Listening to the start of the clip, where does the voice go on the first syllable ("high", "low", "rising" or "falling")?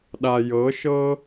low